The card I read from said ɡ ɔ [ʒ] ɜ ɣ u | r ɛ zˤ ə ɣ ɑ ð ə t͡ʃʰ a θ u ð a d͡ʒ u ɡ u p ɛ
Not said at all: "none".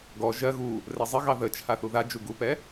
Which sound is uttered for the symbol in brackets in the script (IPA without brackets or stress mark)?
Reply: ʒ